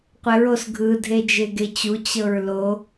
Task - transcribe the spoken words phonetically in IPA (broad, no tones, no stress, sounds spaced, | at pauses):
qʷ ɛ ɹ o s ɡʱ ɯ dʱ e d͡ʒ e ɡ e t͡ɕ u t͡ɕ ɤ ɹ l o